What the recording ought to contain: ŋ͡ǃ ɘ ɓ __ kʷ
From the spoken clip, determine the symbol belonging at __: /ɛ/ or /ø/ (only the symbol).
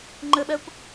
ɛ